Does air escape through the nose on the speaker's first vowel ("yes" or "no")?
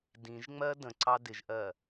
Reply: yes